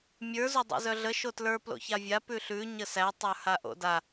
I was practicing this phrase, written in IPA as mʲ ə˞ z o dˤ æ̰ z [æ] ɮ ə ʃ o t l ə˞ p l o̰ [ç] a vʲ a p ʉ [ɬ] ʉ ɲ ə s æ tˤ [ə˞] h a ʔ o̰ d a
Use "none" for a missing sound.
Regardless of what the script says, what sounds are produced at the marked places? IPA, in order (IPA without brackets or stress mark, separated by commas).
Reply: œ, ç, ɬ, ə˞